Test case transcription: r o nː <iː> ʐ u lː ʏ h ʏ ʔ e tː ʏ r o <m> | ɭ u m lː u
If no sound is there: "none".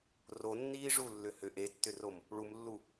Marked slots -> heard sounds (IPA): iː, m

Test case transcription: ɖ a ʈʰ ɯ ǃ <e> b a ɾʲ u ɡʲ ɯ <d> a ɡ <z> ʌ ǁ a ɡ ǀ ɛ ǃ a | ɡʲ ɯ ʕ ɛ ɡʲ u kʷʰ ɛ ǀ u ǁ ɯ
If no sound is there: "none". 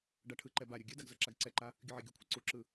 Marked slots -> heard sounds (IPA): ɛ, d, z

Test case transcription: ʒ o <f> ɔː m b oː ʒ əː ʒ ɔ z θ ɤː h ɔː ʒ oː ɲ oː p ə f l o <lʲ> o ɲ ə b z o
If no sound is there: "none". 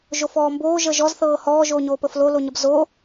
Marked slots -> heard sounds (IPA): f, l

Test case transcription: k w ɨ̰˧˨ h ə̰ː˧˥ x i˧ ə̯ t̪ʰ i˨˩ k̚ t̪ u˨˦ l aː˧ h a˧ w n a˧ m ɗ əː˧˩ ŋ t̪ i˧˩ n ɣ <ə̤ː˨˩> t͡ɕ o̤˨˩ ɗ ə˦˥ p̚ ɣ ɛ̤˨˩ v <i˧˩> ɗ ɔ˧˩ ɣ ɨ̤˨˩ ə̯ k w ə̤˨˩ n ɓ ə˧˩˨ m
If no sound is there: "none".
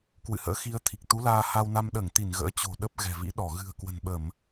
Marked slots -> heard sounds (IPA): ə̰ː˧˥, ḭ˧˥

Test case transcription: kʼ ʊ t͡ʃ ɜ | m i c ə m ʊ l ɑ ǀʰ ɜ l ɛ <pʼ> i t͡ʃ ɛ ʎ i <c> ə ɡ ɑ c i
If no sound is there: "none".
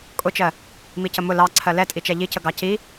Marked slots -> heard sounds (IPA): tʼ, c

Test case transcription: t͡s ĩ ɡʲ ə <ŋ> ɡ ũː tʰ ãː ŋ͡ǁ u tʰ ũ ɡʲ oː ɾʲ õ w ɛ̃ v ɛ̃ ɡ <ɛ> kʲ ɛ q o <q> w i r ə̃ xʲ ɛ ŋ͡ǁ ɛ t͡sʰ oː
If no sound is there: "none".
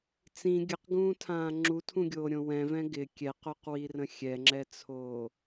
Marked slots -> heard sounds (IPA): q, ɪ, q

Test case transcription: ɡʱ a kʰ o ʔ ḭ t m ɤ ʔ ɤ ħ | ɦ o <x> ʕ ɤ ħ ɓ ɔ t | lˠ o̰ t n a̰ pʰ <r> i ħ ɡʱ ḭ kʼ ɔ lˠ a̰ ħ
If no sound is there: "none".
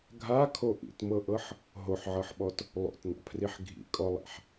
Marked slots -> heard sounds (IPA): ħ, r

